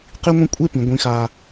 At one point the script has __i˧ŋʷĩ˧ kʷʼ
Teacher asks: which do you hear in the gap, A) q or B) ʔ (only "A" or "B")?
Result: A